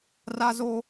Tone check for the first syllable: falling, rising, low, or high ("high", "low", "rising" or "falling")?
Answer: high